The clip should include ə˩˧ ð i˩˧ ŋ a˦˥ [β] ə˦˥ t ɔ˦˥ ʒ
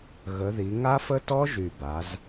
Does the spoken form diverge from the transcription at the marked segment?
yes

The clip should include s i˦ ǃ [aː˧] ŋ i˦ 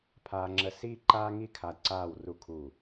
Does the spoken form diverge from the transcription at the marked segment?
yes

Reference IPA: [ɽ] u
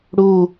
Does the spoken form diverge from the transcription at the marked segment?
no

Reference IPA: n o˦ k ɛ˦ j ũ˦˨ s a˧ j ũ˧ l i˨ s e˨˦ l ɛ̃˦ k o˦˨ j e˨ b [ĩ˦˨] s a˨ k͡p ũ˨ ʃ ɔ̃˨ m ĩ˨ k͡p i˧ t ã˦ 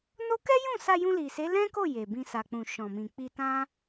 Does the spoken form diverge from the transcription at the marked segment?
yes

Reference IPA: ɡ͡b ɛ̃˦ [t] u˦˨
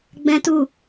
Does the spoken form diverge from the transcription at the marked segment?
no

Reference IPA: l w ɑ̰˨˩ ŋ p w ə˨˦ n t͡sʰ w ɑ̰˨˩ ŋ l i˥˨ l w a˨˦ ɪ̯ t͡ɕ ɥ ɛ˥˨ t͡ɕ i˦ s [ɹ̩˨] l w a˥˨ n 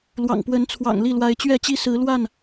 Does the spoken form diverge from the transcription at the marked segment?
yes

